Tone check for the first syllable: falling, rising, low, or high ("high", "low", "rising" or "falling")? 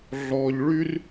low